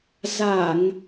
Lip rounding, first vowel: unrounded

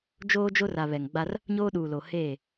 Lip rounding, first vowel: rounded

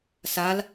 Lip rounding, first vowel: unrounded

